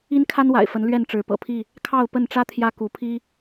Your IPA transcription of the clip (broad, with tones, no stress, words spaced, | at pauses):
i˦nkʰa˦nwa̰˨˩ɪ̯fə˨˦n lɥɛ˥˨nʈ͡ʂɻ̩˨˦pɤ̰˨˩pʰi˥˨ | kʰɑ˥˨ʊ̯ pə˥˨nʈ͡ʂä˦ t̪ʰjä˦ku˨˦pʰi˦